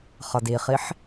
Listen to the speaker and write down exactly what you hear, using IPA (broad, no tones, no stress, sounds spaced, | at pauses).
χ ʌ d i χ i ħ